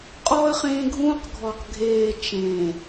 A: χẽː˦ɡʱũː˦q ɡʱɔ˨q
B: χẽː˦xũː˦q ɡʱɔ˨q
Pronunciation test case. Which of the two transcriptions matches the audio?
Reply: A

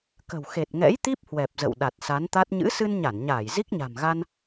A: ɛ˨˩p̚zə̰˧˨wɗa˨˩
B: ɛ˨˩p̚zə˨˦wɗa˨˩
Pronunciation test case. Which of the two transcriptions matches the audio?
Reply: A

